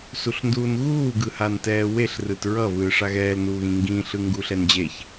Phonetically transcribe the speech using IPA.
suɬnduːnɣuː ɡɯhantɛːweɬ rɯtɹʌ vɯːʂaɣɛːl nuːɣĩŋɡĩ ɬɯŋɡuɬɛnd͡ʑeç

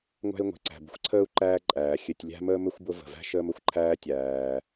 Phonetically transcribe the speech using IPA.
ŋʷæ̤˥i̯ŋʷe̤˩ǀæ̤˨ bə̤˥xʷǀʰəː˥u̯ǃæː˦ ǃʼæː˩xʲɘ˨tʲ lʲæ̤˥məː˥mɘ˥xʷbʊ˦ və̤˩væ̤˥ʃəː˦m ə˩xʷǃʰæː˦ tʲæː˩

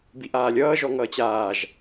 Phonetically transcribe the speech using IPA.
biʔaːlʲʌː ʒɔŋʌːt͡ɕaːʒ

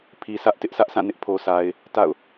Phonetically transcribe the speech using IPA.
pʰi˨sʰä˦ʔ tɪ˦ʔsʰä˦ʔsã˦˨ nɪ˦ʔ pʰo˨sa˨ɪ̯ | ta̰˦˨ʊ̯

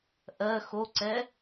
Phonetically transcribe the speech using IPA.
ʔɜ xoǀɛ

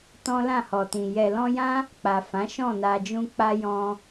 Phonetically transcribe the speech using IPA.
tɔ̃˦lã˦˨hɔ˨tĩ˨ jɛ˨lɔ̃˧jã˦ | k͡pa˨ fã˨˦ʃɔ̃˦˨na˧d͡ʒũ˦ k͡pa˦jɔ̃˦

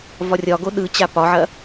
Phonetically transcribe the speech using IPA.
vɒrʲɒɡo ɗɯt͡ɕa pɒʕɐ

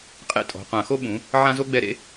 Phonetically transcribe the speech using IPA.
qʼḛ˥tʼɔ̤˩˧˩qʷã˧˩˧xo˥ ɓũ˨˥ | ʕã˥zo˥ɡ͡bɛ˥˧ɾḛ˥

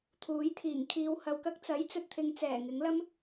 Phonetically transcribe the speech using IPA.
t̪ʰuː˨˥jt̪ʰiː˨˩ŋ kʰiː˨whɐ˨˧wkɐ˧k̚ t͡sɐ˨˥jt͡sɵ˨t̚t̪ʰɪ˨˧ŋ t͡sɛː˨˩ŋɪ˨˥ŋlɐ˥m

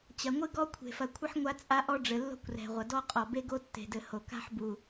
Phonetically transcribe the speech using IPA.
t͡ɕɐ˨ŋʷɨ˦ɡɔ˦ kʷʰe̤˨fɐ˨kʷʰɘ˦ħ ŋʷa˦t͡sʼa˦ʔɔ˦ɖ͡ʐɘ˨ lːo̤˦kʷrɛ̤˨ʁʷɐ˨ dɔ˦qʼɔ˨be˦ ɡo˦tːe̤˨dɘ˨ ho˨ka̤˦ħbu˨

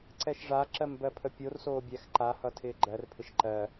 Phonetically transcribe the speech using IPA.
ǀɛʃʐaǁɜm bɜpʰəpʲorsoː bʲæxǃahʌ tʰɪːɡ͡ǃɜrpʰɪʃ ǃɜ

